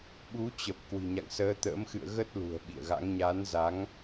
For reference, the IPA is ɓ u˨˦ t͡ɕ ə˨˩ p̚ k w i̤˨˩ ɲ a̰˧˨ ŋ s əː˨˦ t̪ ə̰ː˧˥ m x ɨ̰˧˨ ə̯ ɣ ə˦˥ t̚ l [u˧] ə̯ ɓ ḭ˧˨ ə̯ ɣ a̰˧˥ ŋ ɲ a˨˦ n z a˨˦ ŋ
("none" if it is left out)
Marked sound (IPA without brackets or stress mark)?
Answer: ṳ˨˩